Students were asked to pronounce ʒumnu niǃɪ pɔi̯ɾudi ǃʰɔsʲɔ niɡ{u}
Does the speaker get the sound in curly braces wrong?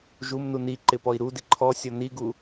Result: no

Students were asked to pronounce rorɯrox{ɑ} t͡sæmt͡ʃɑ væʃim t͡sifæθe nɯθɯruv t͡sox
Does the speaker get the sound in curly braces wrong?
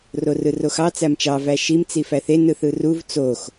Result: no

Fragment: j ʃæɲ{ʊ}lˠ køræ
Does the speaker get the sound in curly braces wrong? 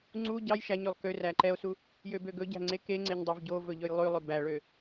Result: yes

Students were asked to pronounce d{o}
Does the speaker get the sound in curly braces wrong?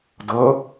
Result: yes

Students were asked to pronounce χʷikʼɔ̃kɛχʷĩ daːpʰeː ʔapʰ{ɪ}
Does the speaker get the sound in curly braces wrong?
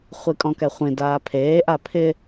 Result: no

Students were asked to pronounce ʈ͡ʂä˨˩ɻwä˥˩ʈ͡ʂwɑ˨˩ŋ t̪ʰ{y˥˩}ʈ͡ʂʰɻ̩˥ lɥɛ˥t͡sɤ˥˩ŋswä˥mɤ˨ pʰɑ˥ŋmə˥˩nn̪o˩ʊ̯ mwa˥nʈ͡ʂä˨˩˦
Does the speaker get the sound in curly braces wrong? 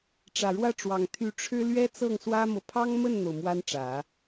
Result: yes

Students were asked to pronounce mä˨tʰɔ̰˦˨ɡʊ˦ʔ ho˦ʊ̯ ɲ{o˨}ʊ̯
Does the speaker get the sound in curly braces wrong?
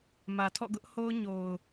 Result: no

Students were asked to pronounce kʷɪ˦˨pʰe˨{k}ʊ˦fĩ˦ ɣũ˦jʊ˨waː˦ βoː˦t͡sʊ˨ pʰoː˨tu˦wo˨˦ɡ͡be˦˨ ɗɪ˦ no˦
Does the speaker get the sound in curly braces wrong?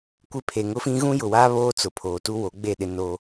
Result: yes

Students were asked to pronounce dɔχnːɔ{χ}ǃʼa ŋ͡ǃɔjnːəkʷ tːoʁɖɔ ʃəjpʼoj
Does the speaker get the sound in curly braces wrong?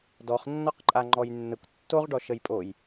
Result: yes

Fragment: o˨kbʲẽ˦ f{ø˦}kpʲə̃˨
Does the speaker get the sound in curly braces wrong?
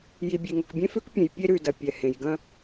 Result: no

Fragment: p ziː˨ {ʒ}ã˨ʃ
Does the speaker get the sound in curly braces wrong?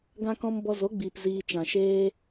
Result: yes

